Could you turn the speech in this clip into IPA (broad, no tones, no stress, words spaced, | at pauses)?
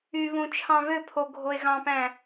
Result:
yβũ t͡ʃʰɑ̃βøpʰo ɡʱoe̯ɣɑ̃pæ̃